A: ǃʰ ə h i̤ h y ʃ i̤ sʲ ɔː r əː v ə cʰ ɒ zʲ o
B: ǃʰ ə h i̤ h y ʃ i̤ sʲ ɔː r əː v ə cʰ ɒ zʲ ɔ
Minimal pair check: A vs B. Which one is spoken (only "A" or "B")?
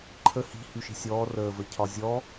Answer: B